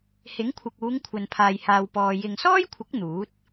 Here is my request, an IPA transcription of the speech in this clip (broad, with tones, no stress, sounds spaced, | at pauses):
h ɪ˨˥ ŋ kʷʰ ɪ˨ k̚ uː˨˧ ŋ kʷʰ ɐ˨ n pʰ aː˨ j h aː˨ w p ɔː˨ j ɪ˨ ŋ s ɔː˥ j kʷʰ ɪ˨˥ k̚ n̪ uː˨˥ t̚